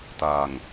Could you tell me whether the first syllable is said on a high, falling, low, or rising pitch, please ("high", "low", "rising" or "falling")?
low